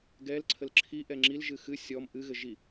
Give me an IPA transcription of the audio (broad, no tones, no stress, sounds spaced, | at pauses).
ɡ ɛ l ǀʰ ə l ǁʰ i ʔ ɛ ŋ͡ǁ i l ʒ ɨ x ɨ sʲ ɔ m ʔ ɨ ɣ ɘ ʒ i